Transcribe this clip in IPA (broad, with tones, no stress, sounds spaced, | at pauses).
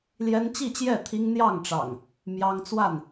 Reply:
l j ɛ˦ n t͡ɕ i˥˨ t͡ɕ j ɛ˥˨ t̪ʰ i˦ ŋ n̪ j ɑ˥˨ ŋ ʈ͡ʂ ɑ̰˨˩ ŋ | m j ɑ˦ ŋ t͡s w a˥˨ n